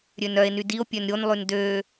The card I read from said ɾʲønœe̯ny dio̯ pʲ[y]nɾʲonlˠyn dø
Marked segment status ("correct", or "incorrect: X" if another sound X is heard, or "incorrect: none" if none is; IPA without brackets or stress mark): incorrect: ø